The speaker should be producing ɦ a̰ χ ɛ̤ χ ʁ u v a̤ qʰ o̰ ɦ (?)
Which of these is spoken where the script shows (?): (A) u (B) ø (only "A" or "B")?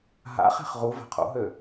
B